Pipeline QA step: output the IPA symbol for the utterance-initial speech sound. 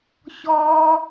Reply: ç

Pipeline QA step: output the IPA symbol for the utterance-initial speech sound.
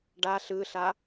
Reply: ɖ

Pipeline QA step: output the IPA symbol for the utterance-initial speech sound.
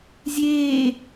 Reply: zʲ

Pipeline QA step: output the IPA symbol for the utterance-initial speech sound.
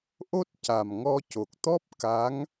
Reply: ʔ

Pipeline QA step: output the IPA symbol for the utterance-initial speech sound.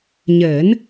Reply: ɲ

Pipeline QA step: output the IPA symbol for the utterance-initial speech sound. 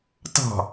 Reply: t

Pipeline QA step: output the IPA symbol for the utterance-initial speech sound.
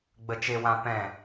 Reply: ɡ͡b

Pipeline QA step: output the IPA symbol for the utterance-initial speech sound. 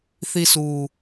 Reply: θ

